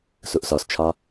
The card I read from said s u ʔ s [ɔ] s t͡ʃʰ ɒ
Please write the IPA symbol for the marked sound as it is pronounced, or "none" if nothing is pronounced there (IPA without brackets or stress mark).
ɔ